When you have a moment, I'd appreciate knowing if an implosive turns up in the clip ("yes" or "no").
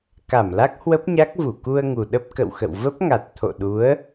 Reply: yes